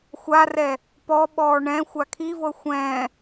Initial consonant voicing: voiceless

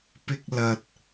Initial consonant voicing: voiceless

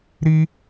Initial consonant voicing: voiced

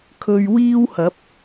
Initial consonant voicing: voiceless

